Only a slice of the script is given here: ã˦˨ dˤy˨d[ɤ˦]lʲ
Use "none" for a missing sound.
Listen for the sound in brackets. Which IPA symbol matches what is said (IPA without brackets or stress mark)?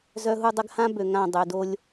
o˦